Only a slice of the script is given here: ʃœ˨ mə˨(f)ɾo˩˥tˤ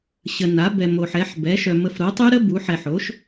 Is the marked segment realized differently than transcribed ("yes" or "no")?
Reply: no